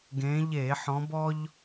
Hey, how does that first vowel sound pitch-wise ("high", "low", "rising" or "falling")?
rising